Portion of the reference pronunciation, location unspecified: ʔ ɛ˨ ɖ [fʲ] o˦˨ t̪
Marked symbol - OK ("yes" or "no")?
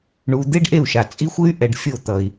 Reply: yes